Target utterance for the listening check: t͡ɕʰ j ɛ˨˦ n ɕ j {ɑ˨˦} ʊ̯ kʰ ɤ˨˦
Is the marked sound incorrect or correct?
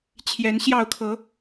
incorrect